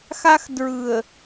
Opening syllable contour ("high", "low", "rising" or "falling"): high